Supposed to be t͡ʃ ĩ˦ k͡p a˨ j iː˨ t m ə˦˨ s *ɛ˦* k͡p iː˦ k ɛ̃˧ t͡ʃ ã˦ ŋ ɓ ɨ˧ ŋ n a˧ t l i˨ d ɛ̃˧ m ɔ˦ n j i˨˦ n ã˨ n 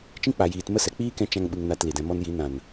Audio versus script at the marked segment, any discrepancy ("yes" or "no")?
yes